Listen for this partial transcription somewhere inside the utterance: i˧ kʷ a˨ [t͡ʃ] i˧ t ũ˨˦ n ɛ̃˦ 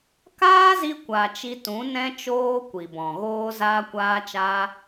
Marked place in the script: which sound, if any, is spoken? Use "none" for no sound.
t͡ʃ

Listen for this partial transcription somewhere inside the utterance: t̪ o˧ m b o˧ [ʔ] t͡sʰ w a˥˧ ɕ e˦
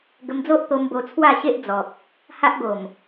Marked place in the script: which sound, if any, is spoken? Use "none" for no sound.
none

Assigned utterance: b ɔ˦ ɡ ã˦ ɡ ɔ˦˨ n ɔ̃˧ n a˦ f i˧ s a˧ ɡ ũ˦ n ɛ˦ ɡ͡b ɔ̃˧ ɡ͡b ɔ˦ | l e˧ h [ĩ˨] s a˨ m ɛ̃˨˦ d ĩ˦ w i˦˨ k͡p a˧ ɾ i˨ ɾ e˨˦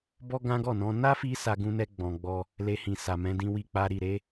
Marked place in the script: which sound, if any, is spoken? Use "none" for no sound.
ĩ˨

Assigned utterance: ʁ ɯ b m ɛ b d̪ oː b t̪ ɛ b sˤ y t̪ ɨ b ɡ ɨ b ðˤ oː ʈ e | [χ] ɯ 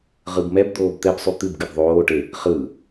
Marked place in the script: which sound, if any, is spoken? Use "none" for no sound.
χ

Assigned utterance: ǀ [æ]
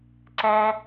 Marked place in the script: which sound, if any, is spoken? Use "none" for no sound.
æ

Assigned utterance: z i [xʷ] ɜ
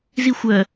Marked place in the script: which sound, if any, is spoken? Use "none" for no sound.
xʷ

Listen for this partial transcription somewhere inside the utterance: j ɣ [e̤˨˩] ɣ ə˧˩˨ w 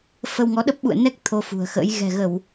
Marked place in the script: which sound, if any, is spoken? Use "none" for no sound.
ɛ̤˨˩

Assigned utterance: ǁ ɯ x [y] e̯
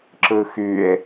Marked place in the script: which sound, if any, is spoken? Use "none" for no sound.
y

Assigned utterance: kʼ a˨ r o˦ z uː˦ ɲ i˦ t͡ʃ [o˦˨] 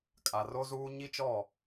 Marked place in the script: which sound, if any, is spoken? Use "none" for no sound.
ɔ˦˨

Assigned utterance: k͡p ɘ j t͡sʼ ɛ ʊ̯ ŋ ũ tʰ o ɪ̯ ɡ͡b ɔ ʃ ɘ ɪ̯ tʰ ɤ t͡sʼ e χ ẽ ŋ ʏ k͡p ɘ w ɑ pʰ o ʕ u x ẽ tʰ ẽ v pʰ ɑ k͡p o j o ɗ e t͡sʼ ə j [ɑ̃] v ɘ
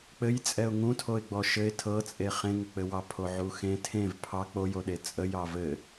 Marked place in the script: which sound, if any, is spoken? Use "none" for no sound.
ɑ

